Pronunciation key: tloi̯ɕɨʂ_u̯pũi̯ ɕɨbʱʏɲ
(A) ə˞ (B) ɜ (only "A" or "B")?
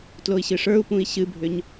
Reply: A